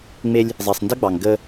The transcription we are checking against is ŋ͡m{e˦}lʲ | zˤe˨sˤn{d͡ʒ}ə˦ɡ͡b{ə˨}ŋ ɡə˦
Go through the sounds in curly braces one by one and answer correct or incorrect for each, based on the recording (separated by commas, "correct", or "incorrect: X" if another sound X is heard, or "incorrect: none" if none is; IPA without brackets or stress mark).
correct, incorrect: d, incorrect: ɑ˨